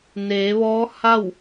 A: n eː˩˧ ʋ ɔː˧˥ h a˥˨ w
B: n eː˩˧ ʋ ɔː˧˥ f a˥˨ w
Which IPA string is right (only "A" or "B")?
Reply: A